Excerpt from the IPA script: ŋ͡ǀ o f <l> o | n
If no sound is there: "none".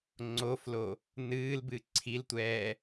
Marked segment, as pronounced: l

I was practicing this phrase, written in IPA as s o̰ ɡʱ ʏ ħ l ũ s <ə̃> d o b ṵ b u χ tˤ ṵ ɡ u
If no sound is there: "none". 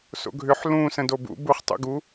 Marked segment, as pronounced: ə̃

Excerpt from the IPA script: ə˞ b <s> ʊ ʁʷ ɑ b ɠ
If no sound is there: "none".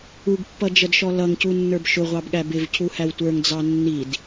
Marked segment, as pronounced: ʃ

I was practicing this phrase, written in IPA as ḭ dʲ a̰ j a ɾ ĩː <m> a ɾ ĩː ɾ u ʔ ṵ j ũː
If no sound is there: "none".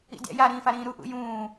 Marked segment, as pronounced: f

